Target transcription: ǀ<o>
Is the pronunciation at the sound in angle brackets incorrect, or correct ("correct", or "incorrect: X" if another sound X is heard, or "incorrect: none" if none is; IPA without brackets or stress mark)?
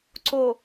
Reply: correct